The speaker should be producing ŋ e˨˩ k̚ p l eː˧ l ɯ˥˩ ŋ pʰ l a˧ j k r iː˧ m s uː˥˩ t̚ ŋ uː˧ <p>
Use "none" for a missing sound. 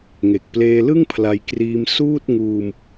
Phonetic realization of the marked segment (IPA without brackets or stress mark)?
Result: m